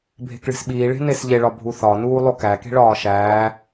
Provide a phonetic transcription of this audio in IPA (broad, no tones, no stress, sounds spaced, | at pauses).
bʱ e̤ k ɭ e̤ s ɓ iː ɭ e̤ n e s ʎ e ɭ ɒ bʱ u θ ɒ n uː lˠ o k æ k e̤ ɭ ɒː ʃ æː